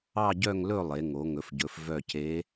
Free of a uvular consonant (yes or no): yes